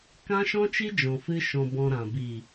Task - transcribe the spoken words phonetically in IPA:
kã˦ʃɔ̃˦t͡ʃi˦d͡ʒɔ̃˨ fɨ˧ʃɔ̃˨bɔ̃˨ ɾã˨ bi˨

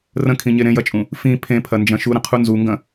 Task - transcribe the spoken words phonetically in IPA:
rə̃kʰĩɲe ɾẽjɐt͡ʃʼũ | fĩ pʰẽpʰɐnd͡ʒɐ̃ ʃuɾə̃qʰu nzuŋɡɐ̃

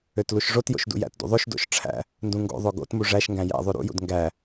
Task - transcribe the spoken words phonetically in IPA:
øtluʃʐotjo̰ʃ dṵjæ̰tdṵ ðˤoʃdo̰ʃ ʈ͡ʂʰæ̰ | ndũŋɡo̰ðˤo ɡo̰tmu ʐæʃŋɡæ̃ jæ̰ ðˤʉɾṵjṵd ŋɡæ

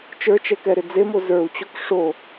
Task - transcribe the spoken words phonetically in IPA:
t͡ʃə˞t͡ʃɛkɛɾɪ d͡zemo zə˞u̯t͡ɕok ʂo

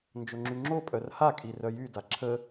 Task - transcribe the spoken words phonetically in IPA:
nd͡ʒoŋ͡ǁyŋ͡ǁopʼœr hakʼi rœjyda ǁʰə

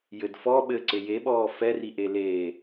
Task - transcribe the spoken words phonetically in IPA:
jɘd fɔ ɓɘǀe jeɓɔː fɛriʔe leː

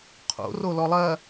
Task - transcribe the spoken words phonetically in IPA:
qʰo̰ rolɔlˠɐ

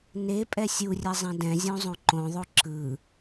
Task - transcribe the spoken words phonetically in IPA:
ne pʼɛsʲurʲɛ zˤɛ̃dɛ̃zʲõ zˤõǃõðˤo ǁɯ

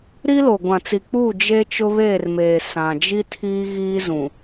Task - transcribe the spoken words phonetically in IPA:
ɾi˦lo˨ ɡʷã˨t͡si˨k͡puː˦˨ d͡ʒe˦ t͡ʃʊ˦βeː˦˨rmeː˨ sã˨ d͡ʒi˦tʰiː˦ ɣiː˦zũ˨

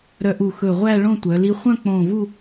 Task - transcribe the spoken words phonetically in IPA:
ɾœ˧ʔu˧˩xɵ˧˩ʁʷæ˥˧ ɭõ˥˧tʷœ˩˧ li˧χʷœ̃˥˧k͡põː˧˩vu˥˧

